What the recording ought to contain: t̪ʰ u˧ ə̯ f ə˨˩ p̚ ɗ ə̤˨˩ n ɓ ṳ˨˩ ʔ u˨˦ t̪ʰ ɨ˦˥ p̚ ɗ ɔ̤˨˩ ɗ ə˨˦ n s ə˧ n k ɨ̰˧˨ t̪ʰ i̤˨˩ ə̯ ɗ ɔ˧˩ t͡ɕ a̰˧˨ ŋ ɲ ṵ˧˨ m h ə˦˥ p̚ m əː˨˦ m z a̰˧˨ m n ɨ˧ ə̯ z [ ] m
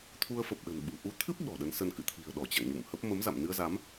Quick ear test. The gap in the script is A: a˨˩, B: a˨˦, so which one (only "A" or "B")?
B